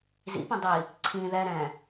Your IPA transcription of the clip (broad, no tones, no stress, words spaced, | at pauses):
zḭpɛ̃ dˤi | ǀʰĩ ðɛ ɾɛ̃